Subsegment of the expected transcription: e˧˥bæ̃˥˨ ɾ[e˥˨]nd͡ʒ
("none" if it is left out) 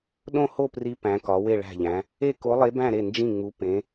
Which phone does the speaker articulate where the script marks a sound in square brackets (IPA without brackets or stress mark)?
e˥˨